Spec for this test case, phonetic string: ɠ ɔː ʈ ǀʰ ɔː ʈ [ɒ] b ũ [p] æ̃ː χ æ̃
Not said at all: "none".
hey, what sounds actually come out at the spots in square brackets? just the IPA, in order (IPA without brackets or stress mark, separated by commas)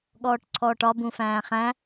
ɒ, f